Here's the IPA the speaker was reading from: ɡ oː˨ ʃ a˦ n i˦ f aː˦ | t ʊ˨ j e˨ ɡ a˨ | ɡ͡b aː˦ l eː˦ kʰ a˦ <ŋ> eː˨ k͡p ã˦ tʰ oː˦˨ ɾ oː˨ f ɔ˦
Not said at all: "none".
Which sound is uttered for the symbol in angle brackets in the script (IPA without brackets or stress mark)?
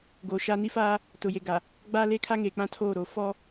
ŋ